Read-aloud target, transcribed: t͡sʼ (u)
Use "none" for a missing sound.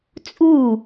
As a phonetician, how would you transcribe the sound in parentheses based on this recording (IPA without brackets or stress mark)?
u